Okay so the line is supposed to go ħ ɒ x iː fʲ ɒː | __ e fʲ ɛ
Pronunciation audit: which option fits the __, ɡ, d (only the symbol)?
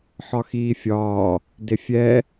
d